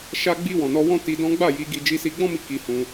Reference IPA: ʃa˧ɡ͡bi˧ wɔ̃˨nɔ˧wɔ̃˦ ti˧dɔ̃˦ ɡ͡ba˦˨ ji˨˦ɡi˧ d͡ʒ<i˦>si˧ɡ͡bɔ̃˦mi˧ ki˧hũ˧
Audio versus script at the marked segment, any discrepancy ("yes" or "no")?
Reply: yes